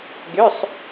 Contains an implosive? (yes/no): no